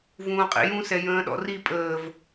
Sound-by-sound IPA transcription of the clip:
vũːqʼḭjũ sɛjə̃ːɗɔ̰ri pʼəːv

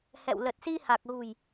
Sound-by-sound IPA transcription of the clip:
hɛ̰˧˨w lə˨˩t̚si˧ha˨˩k̚ɣṳ˨˩j

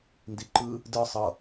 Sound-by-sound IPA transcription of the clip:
ndiǃɯ | dɯ sˤɤ

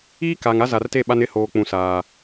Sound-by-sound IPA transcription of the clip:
iː˦kaː˨ŋ a˦za˨rte˦˨ ɓa˦nɪ˦˨hoː˨ k͡pũ˨saː˨

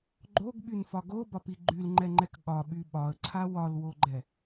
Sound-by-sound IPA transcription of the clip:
ɡ͡ǃoɡɓynfɒ ɡobɒpi ɡ͡ǃylŋ͡ǃɛŋ͡ǃɛk ɠɒɓy ɓɒə̯ǀʰa wɒlwoɡ͡ǃɛ

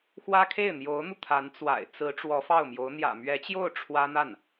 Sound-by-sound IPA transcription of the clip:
xwä˥kʰe˥˩ɪ̯n̪jo˧˥ʊ̯n̪u˧ t̪ʰa˧˥nt͡swa̰˨˩ɪ̯ t͡sɹ̩˧˥ ʈ͡ʂwɔ˧˥fɑ˥˩ʊ̯mjo˧˥ʊ̯ n̪jä̰˨˩mɥɛ˧˥t͡ɕjo˥˩ʊ̯ ʈ͡ʂʰwä˥n̪a˥˩n

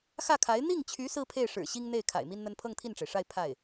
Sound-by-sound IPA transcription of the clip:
xä˥˩kʰa˧˥ɪ̯ n̪i˥˩ŋt͡ɕʰy˧˥ sɹ̩˥pʰe˥˩ɪ̯ʂɻ̩˨˩ ɕi˥ŋ n̪e˥˩ɪ̯ kʰa̰˨˩ɪ̯mi˥nn̪ə˥n pʰɤ˥˧ŋt̪ʰi˥˩nʈ͡ʂe˩ɪ̯ʂa˥˧ɪ̯ pʰa˥˩ɪ̯

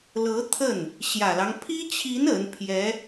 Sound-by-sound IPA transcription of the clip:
lɤ˧˥t̪ʰə˥˩n | ɕjä˨˩lɑ˦ŋ pʰi˥t͡ɕʰi˧˥n ə˧˥npʰjɛ˧˥

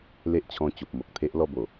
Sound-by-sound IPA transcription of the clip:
le˦ʔt͡ɕʰɔ̃˧ t͡ɕo˨p̚mo˨k̚t̪ʰe˦ʔ lɔ˥˧bo˨˩

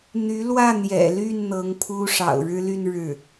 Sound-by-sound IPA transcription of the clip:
n̪y˧˥lwä˥˩n̪jɛ̰˨˩ly˥˩n n̪ɤ˧˥ŋpʰu˥ ʂɑ̰˨˩ʊ̯ɻɻ̩˥ly˥˧n ɻɻ̩˥˩

